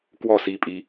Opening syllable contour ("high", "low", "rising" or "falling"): falling